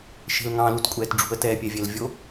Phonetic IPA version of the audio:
ʃ e̤ l ŋ ɑ̃ l u t kʷʼ ɛː t ɖ͡ʐ ṳ ə̯ t ɛː pʲ ɛ vʲ ɛ l vʲ o

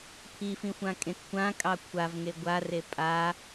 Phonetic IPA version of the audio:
pʰ i f ĩ xʷ ã kʼ ẽ t kʷ ã kʼ ɑ kʷʰ a v ŋ e ɡʷ a r e pʼ a

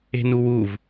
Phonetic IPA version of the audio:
e̤ n u w u v

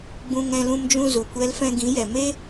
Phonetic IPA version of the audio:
ɡ͡b ũ˧ ŋ ɛ̃˧ l ũ˧ m d͡ʒ ũ˧ z u˨ kʷ ɛ˧ l f ɛ̃˧ ɡ ĩ˨˦ j ɛ˨ m e˦

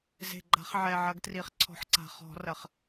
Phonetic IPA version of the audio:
z e̤˨˩ ɡ͡ǃ a̤˨˩˦ χ ʕ ɛ˨˩ ʕ ɐ˨˩˦ ɡ t r i˨˩ χ ǀʰ ɔ̤˨˩˦ ħ ǀ a̤˨˩ χ ɔ̤˨˩˦ r ɐ˨˩ χ

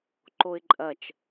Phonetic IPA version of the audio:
ǃ o ɪ̯ ǃʼ ɐ t͡ʃ

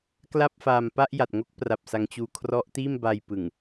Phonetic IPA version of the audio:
k l a˥˩ p̚ f aː˧ m p a˥˩ ʔ j a˨˩ t̚ ŋ o˦˥ k̚ p r a˨˩ p̚ s a˧ ŋ t͡ɕ uː˧ kʰ r ɔ˦˥ ʔ t iː˥˩ m b a˧ j p ɯ˨˩ ŋ

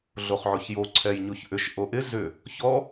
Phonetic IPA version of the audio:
ɮ o χ ʕ o ç j o ǀʰ ɛ j ɲ o ç ʔ ʏ ʃ ʔ o ʔ ɪ z ʏ | ç ɔ

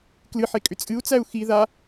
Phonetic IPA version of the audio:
k l ɨ ħ e kʼ ʏ t͡sʼ ɨ u̯ t͡s æ u̯ x i ð a

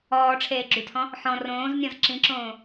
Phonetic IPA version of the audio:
ɔː ʈ͡ʂʰ eː ɡ͡ǁ y tʰ ɔ̃ | ħ ɔ̃ r õː z nʲ ɔ̃ z ǁ ĩ ǁ õː

